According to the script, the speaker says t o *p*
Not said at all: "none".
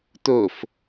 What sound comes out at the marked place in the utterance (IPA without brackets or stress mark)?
f